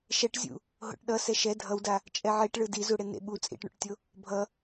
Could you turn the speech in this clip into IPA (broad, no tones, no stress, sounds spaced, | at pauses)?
ʃ ɛ ʈ zʲ ṵ | ɦ o̰ ʈ ɗ ʌ s ɛ ʃ ɛ dʱ ʌ w d a | t͡ʃʼ ɛ ʕ i ʈ ɭ ɯ d i z u ɽ e n ḛ ɓ u t͡sʼ ḭ ʈ ɳ ṵ ʈ tʲ o | bʱ ʌ